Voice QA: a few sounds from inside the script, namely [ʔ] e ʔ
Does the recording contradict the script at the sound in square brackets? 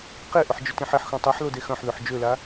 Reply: yes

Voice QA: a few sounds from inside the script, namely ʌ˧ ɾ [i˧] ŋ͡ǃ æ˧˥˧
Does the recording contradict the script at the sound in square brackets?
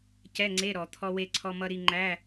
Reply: no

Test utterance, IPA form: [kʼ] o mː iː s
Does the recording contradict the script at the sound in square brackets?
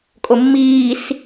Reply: no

